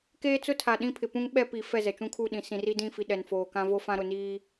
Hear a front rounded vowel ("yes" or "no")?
no